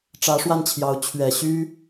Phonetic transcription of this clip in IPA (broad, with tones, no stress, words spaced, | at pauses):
ʈ͡ʂä˧˥ʂwa˥˩nt͡ɕʰjɑ˧˥ʊ̯ t͡ɕʰɥɛ˨˩ɕy˥